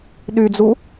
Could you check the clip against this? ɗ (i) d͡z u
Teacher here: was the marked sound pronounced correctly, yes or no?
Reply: no